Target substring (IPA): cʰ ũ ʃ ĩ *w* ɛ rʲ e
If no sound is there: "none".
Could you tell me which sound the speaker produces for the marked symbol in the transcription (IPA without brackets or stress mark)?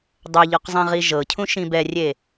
b